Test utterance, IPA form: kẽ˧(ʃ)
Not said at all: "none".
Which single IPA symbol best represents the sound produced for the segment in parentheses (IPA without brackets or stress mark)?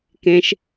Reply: ʃ